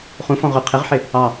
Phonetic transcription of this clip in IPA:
χ ũ f ɔ̃ ʁ ʊ qʰ ɪ ʁ ħ ɪ | ɑ

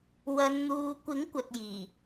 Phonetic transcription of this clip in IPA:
w ɐ˨˧ n n̪ uː˨ kʷ ɪ˨˥ ŋ kʷ ɐ˨ t̚ j iː˨˩

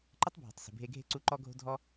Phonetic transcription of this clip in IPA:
ǃ ə˦ tˤ bʱ ɔ̤˨ tˤ s ə̤˨ bʱ e˧ ɡʱ e̤˦ ǀ u˦ ǃ ɔ˦ ɡʱ o̤˦ dʱ ɔ˦

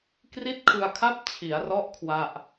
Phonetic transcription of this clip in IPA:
k r i˥˩ t̚ kʰ ɯ˧ a̯ kʰ a˥˩ p̚ t͡ɕʰ i˩˦ a̯ r ɔ˦˥ ʔ kʰ w a˥˩ ʔ

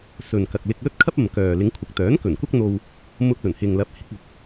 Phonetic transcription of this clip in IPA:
s ɵ˨ n k ɐ˨ k̚ l ɪ˧ k̚ l ɵ˥ t̚ kʰ ɐ˥ p̚ ɐ˨ m k œː˨ l ɪ˨˧ ŋ kʷʰ ɐ˨ k̚ t̪ œː˨˥ n k ɵ˨˩ n kʷ ɐ˥ k̚ n̪ o˧ w | m ʊ˧ k̚ l ɵ˨˩ n h ɪ˨ ŋ l ɐ˨˥ p̚ h ɪ˨˥ k̚ ʊ˨ k̚

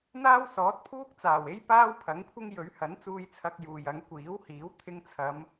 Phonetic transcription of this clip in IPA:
n̪ aː˥ w s ɔː˨˥ t̚ pʰ uː˥ k̚ t͡s aː˨˩ w e˥ j p aː˥ w pʰ ɐ˨˥ ŋ kʷʰ ɪ˥ ŋ j ɵ˨˥ ɥ h ɐ˨˥ n t͡s uː˧ j t͡sʰ ɐ˧ k̚ j uː˨ j ɐ˨˥ ŋ kʷ iː˨˥ w h iː˨˥ w t̪ʰ ɪ˧ ŋ t͡sʰ ɐ˨˧ m

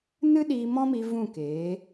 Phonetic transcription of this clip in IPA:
n ɨ˦ ɗ iː˧ m ɔ̃˦ m i˧ v ũ˦˨ k eː˨˦

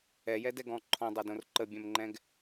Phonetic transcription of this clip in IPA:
ɛ j ɛ d ɛ ɡ ɔ̃ ǃʰ ɔ̃ dˤ ʌ d õ r ǃ ə bʲ ɛ̃ m ŋ͡ǃ ɛ̃ ɡ

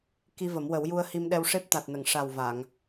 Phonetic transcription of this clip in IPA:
k i˧ v ə˨˩˦ m w ə˨˩˦ w j u˧ ə̯ h i˧ m ɗ ɛ˧ w ʂ e˦˥ p̚ t̪ a˨˩ t̚ n ə˨˩˨ ŋ ʂ a˨˩ w v a˨˩˨ ŋ

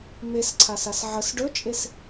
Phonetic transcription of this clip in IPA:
m e s ǀʰ a s a s ʕ ə s ɖ ɵ t͡ʃʼ e s

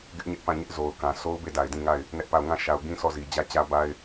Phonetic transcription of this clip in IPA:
ɡ ɪ˦ ʔ ɲ ɛ˦ ʔ p ã˦˨ ɲ ɪ˦ ʔ z o˨ ʊ̯ k ã˨ sʰ o˦ ʊ̯ b e˦˨ d a˨ ɪ̯ d ĩ˦˨ ŋ a˦˨ ɪ̯ | n ɛ˦ ʔ p a˦˨ ʊ̯ ŋ ã˦˨ ʃ a˨ ʊ̯ ɡ ĩ˦ sʰ ɔ˦˨ z i˨ d͡ʑ ä˦˨ t͡ɕ ä˦ b a˦ ɪ̯

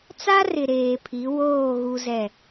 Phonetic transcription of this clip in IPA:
t͡s a˦ r ɪ˨ ɾ eː˨ pʰ i˨˦ w oː˦˨ ɣ u˦ z ɛ˦˨

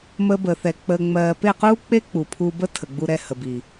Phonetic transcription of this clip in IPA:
m əː˦ b əː˧ θ ɛ˧ k͡p əː˧ ŋ͡m ɜː˧ p e˦˨ q uː˦ k͡p e˦ k͡p u˨ pʰ u˧ b ə˦ tʰ ə˨ ɡ͡b u˧ ɾ ɛ˧ h ə˨ b i˨

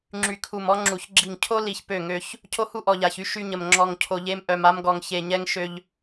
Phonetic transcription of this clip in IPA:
ŋ͡ǁ y˨ kʰ u˨ m ɔ˦ ŋ͡ǁ u˨ ç ɡ͡ǁ i˨ ŋ cʰ o˦ l i˨ ç p ø˦˨ ŋ ø˦ ç | cʰ o˦ h u˦ ʔ ɔ˨ ʎ a˨ ç y˦ ʃ y˦ ɲ ə˨ m ŋ͡ǁ ɔ˨ ŋ cʰ o˨ ʎ e˦ m ʔ œ˨ m a˦ m ɡ ɔ˨ ŋ ç e˨ ɲ ɛ˦ ŋ ʃ ø˦ ʎ

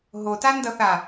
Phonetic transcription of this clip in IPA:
ɦ o t a n d ʌ θ a

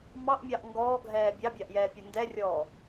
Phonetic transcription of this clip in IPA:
m ɑ ʔ mʲ ɑ ʔ ŋ ɡ ɔː ɡʱ ɛː bʲ ɑ bʲ ɑ ʔ j ɛː pʲ o n d ɛ rʲ ɔː

